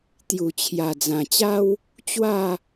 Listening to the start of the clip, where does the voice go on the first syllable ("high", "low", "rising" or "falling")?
low